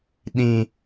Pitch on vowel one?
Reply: low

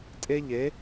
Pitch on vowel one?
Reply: high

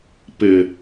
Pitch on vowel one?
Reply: low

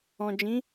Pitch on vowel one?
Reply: low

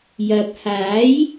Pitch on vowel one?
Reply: low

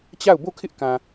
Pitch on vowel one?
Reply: falling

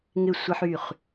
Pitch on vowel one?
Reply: falling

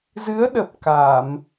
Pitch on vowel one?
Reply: rising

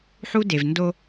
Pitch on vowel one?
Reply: high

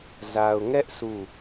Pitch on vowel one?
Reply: low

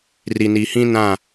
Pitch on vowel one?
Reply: low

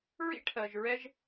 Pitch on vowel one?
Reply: high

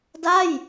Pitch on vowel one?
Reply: falling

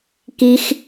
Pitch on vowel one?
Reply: high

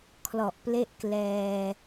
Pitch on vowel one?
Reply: low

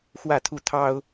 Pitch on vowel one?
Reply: falling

